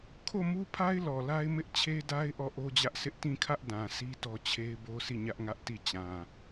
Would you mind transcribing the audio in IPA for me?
kʰo˦˨mu˦pʰa˦ɪ̯ lɔ˨la˦ɪ̯ mɪ˦ʔt͡ɕʰe˦da˦ɪ̯ ʔɔ˦˨ʔo˦d͡ʑä˦ʔsɪ˦ʔ tĩ˦˨kʰä˦ʔ dã˨ si˦tɔ˦ t͡ɕʰe˦ɪ̯bo˦sʰi˦˨ ɲä˦ʔŋä˦ʔti˦˨ t͡ɕã˨

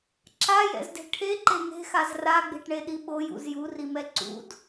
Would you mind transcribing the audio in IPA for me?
ǁajɛ̰zde̤ ʈʰeǃe ŋe̤xaz raɡ͡be̤ʈɳeɗi ɓojṵz jurimɛ ǀṵd

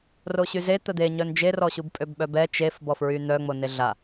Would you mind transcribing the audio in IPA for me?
roɕyze t̪əd̪e ɲœnd͡ʒerɔɕub pʼøbɓœbɛ t͡ʃefbɔfɹy n̪œ ŋ͡moneɮa

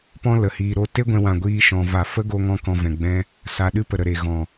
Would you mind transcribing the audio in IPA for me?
pɔ̃˦lə˨hiː˧ ɾo˧te˦ɡʷɛ̃˧wã˨ ɡʷiː˦ʃɔ̃˧va˧ fə˦ɡo˧ŋɔ̃˧ kɔ̃˧vɛ̃˨ɡ͡bɛ̃˦ | sa˧ ɗɨ˦pə˨ɾə˨ɾe˨ ɣɔ̃˨

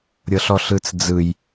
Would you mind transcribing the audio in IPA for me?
ɾʲɤɬɔɬɯt͡sd͡zɯj

